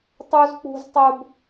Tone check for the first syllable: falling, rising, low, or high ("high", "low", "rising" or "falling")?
high